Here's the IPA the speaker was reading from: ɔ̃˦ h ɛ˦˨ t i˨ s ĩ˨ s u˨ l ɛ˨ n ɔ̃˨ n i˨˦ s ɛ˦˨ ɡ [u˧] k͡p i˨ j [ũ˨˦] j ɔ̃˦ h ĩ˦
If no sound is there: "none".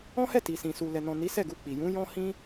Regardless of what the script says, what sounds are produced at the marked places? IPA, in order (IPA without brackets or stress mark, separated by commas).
u˧, ũ˨˦